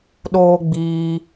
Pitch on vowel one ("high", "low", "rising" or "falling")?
high